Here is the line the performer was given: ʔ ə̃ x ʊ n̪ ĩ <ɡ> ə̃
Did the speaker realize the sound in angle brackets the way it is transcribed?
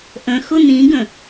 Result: yes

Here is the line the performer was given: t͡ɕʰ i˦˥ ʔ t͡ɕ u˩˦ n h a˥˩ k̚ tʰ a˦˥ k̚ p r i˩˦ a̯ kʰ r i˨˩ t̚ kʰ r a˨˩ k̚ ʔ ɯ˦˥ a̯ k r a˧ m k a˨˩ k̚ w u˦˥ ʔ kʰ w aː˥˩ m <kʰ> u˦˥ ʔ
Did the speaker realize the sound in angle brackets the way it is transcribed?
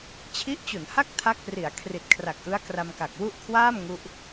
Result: no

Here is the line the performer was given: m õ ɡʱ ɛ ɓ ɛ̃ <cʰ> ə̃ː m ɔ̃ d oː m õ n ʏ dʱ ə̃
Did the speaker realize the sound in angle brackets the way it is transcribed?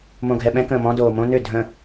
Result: no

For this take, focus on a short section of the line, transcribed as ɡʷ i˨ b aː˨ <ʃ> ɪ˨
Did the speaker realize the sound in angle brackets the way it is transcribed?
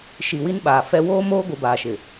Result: yes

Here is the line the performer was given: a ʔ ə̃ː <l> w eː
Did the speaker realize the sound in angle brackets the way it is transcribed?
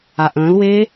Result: yes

